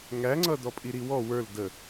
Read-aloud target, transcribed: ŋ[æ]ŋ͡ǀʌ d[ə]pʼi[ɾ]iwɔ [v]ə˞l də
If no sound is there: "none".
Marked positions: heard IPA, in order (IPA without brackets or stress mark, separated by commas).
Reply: æ, ɔ, ɾ, w